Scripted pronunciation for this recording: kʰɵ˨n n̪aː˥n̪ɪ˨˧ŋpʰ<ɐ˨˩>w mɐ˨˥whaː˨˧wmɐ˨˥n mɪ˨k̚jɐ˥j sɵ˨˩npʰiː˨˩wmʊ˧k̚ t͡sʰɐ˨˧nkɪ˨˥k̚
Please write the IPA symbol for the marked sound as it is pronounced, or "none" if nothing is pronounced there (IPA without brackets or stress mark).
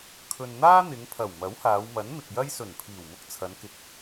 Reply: ɐ˨˩